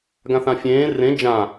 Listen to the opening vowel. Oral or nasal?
nasal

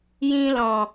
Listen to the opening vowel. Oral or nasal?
nasal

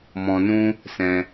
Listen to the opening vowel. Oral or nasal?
nasal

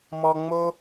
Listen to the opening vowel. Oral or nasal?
oral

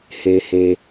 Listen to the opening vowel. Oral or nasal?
oral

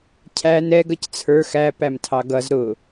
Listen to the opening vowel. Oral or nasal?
oral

